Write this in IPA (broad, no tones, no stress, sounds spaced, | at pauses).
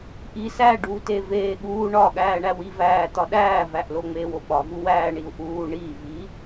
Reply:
ʔ i s æ ɖ uː t e v eː ɠ uː ɳ ɒ ɠ æː ɳ æ w i v æː t̪ ɒ ɗ æː v æ ʔ l o ŋ͡m eː w o ɓ ɒ v u w æː ɳ i u̯ ʔ uː ɳ i v i